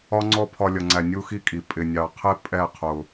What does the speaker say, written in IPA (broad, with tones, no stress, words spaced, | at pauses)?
ɒ˦ŋ͡ǀɔ˦pʰɒ˧ lʲʌ˨ŋ͡ǀæ˨ nʲu˦xi˦kʼi˨ pʼɪ˨nʲɑ˨qʰɪ˦ pʼɛ˦˨qʰʊ˨